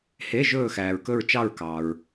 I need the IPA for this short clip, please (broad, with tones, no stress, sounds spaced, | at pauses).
h e˧˥˧ ʒ ɵː˦˨ x æː˨ ɹ k ɵ˦˨ ɹ t͡ʃ ɑ˦˨ ɹ k ɑ˨ ɹ